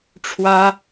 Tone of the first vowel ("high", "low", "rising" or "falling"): high